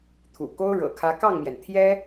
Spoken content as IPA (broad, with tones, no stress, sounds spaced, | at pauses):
t̪ʰ ṵ˨˩ k o˥ ʊ̯ ɻ ɤ̰˨˩ kʰ ä˧˥ k ɑ˥˩ ŋ m j ɛ˩ n t̪ʰ j ɛ˥